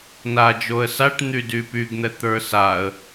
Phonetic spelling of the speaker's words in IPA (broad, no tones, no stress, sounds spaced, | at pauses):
n a d͡ʒ o ə̯ s a ʈ n̪ y d y p y ɡ n̪ ɛ t̪ ə˞ s a ə̯